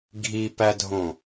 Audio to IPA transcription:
ɡʱipædʱõ

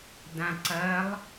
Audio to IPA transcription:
dãǀɐlˠ

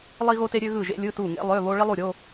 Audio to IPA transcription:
lˠi˥ɣo˥te˥ ɾʲø˥ ɣɯ˥˨ʒḛ˥lʲɯ˧˥˧ tu˥˨ ŋḛ˥lˠø˧˥˧βo˥ ɭi˥lˠu˥˨ ɾʲo˧˥˧

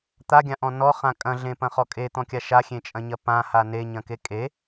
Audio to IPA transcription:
t̪aɡʲãʔɔ̃ nɔχã kʼɐ̃ɮẽpɐ̃χɔ kʼet̪ɔ̃kʲa ʃaxʲẽt͡ʃʼɐ̃ɲɐ pãha neɲɐ̃ke kʼe

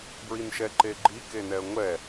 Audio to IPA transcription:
bɹinʃɛǃeɡ͡ǃi kenɛə̯ŋʷɛ

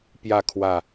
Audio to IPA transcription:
pjä˥˧ kʰwä˥˩

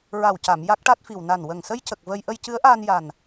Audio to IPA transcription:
ɹa˨˩wca˨˩˨m ja˦˥k̚ʈa˦˥t̚fi˨˩w na˨˩n wə˨˩ŋsə˧jcə˨˩k̚ və˧j ʔə˧jcɨ˧˥ə̯ʔaː˧n ja˨˩n

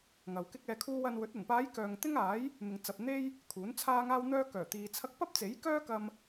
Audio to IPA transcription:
ŋɐ˨wkɪ˥k̚ ɛː˧kʰuː˥ wɐ˧nwɵ˨˥t̚ ɐ˨˩npaː˨˧j kœː˨ŋt̪ɪ˥ŋaː˨˥j | mɪ˨ŋt͡sɐ˨p̚ n̪e˥j | kʰuː˨˥nt͡sʰaː˥ŋaː˥wn̪œː˥ kœː˨˩ t̪iː˨ t͡sʰɐ˥k̚ pɐ˥p̚t͡se˨˥jkœː˥kɐ˧m

